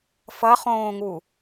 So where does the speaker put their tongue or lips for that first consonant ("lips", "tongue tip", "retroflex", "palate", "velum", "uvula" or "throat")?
lips